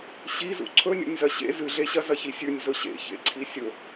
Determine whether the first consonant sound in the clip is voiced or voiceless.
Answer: voiceless